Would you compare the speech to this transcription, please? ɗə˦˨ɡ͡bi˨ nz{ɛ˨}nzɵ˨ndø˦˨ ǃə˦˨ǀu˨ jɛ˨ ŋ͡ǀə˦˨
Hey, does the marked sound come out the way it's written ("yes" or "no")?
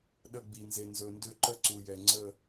no